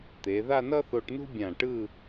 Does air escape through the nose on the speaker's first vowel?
no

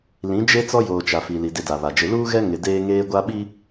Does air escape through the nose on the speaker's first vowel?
yes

